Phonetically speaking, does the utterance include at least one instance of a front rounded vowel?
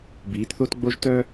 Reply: yes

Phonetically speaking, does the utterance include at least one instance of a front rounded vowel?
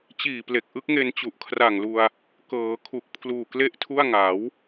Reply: no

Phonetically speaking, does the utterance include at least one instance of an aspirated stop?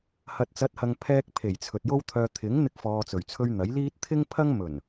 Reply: yes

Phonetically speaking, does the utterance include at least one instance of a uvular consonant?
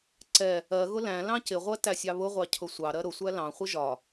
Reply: yes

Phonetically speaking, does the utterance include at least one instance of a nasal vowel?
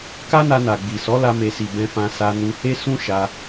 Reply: yes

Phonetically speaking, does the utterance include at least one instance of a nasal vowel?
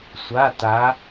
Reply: no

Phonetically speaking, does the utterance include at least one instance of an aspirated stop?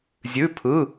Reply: yes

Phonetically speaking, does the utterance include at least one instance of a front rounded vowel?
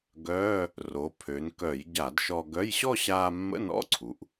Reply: yes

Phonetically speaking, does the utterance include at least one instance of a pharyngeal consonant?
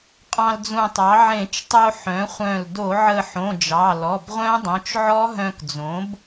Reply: yes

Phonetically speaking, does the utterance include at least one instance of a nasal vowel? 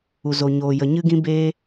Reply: yes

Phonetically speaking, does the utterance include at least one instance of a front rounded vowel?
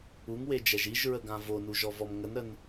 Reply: no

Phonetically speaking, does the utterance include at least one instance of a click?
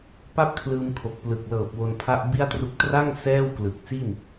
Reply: no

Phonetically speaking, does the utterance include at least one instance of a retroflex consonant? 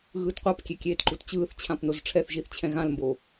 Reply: yes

